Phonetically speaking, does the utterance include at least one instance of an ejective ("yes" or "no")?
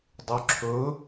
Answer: no